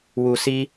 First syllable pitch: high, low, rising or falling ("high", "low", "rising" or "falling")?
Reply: low